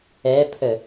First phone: ɛ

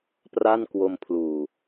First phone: p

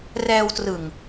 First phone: r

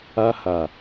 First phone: a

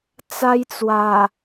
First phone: t͡s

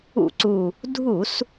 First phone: ṵ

